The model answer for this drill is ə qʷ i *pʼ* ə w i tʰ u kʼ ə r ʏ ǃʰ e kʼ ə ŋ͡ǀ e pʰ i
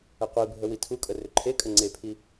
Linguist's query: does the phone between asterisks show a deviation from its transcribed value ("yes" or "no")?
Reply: yes